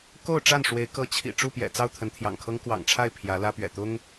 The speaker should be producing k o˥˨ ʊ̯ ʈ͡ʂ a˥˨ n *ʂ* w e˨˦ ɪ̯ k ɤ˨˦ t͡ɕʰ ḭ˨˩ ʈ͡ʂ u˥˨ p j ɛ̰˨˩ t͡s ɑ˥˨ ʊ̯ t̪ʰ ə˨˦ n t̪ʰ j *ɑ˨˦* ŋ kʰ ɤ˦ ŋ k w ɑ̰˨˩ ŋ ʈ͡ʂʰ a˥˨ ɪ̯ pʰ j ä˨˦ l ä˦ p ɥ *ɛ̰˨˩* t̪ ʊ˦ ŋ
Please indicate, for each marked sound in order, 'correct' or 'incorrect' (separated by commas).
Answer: correct, incorrect, correct